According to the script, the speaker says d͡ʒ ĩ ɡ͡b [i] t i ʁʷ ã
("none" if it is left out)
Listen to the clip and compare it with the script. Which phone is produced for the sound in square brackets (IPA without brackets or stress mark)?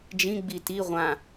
i